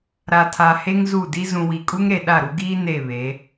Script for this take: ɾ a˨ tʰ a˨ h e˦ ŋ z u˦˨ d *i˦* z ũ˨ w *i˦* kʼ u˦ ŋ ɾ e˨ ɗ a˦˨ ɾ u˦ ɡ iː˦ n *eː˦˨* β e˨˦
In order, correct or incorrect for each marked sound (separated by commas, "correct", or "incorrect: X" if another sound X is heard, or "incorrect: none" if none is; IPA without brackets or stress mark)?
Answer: correct, incorrect: i˨, incorrect: e˦˨